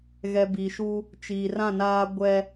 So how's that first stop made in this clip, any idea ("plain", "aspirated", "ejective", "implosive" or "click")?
plain